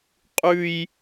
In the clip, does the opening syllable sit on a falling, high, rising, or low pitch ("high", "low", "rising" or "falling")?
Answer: high